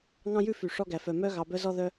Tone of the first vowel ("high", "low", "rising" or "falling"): high